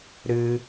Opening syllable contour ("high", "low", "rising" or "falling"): low